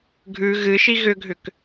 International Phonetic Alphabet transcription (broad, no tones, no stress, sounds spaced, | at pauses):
ɡʱ ʉ ɣ ɨ ʃ i ɣ ʏ ɡʱ ʏ k